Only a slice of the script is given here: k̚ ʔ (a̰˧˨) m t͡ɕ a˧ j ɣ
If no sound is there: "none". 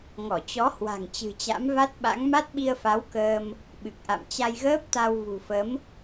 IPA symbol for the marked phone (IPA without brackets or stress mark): a̰˧˨